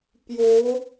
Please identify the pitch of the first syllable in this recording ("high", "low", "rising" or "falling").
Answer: rising